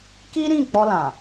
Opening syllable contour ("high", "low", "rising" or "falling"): high